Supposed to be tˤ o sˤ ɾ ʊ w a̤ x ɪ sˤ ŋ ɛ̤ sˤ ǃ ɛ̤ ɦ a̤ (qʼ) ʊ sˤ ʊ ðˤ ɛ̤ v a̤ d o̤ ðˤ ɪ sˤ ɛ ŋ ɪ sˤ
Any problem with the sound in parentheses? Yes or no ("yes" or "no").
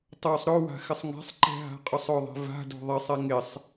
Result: no